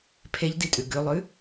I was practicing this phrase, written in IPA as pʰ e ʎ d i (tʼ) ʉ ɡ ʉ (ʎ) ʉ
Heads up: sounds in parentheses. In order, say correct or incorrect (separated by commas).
correct, incorrect